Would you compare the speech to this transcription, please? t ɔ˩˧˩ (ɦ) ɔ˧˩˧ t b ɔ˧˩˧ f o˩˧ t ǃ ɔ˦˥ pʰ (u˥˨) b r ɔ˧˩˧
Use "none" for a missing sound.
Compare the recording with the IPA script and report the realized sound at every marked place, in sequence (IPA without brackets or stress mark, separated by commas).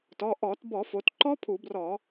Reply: ʔ, u˧˩˧